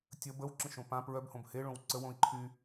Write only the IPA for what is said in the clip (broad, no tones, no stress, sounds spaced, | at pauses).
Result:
tʲ ə b ə w ǁ ə̃ ʃ õ p ã p ɹ œ b h õ b h e ɭ õ w ǀ ə w õ i̯ ǃʰ y